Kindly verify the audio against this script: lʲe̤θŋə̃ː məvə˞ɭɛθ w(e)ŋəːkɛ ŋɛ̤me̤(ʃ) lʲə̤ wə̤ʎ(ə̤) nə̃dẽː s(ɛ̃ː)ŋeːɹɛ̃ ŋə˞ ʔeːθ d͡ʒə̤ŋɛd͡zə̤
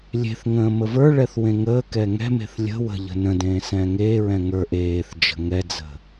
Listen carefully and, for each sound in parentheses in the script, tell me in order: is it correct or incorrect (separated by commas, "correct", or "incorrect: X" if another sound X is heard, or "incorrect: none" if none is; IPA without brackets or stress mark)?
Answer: incorrect: ẽ, incorrect: θ, correct, correct